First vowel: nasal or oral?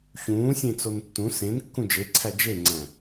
nasal